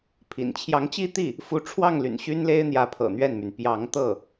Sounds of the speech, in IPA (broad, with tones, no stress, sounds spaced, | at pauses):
pʰ ḭ˨˩ n t͡ɕʰ j ɑ˧˥ ŋ t͡ɕ i˥˧ t̪ i˥˩ | f u˧˥ ʈ͡ʂʰ w ɑ˥˩ ŋ l y̰˨˩ n ɕ y˥ n l e˥ ɪ̯ n̪ j ä˧˥ pʰ ɤ̰˨˩ n̪ ɥ ɛ˥˩ n m y˩ n p j ɑ˧˥ ŋ t̪ ɤ˥˩